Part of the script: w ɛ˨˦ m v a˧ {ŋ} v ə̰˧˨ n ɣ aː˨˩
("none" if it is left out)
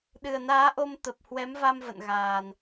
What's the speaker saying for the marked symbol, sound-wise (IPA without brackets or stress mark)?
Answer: m